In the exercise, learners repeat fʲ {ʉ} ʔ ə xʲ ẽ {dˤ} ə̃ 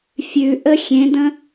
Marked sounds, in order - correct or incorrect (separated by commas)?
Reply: correct, incorrect